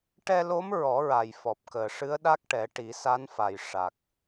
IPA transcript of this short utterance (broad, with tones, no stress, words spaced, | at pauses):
ʈɛ˧lo˧˥m ɹɔ˨˩˦ɹa˨˩jfɔ˨˩p̚ kəː˨˩ʂɨ˧˥ə̯ɗa˦˥k̚ʈɛ˨˩˦ ʈi˨˩˦sa˧˥nfa˨˩j ʂa˨˩k̚